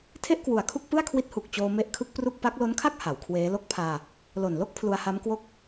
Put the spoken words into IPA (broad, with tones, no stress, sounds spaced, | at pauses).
tʰ e˥˩ ʔ k w u˨˩ a̯ kʰ u˥˩ k̚ p ɯ˥˩ a̯ kʰ w i˦˥ t̚ h u˨˩ k̚ t͡ɕ oː˧ m e˦˥ ʔ kʰ ɯ˦˥ k̚ p r u˥˩ k̚ p a˦˥ k̚ l o˦˥ n kʰ a˥˩ k̚ h a˩˦ w kʰ w eː˦˥ l o˦˥ k̚ pʰ aː˧ | l o˨˩ n l o˥˩ k̚ pʰ l u˧ a̯ h a˦˥ m k w o˥˩ k̚